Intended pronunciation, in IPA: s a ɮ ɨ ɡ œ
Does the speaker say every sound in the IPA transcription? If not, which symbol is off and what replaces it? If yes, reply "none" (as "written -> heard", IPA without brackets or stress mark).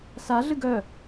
none